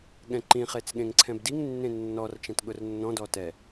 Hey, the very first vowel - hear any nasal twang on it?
yes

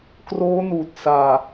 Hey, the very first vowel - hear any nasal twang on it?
no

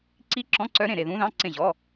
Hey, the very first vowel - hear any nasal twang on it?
no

